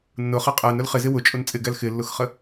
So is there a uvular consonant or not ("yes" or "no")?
yes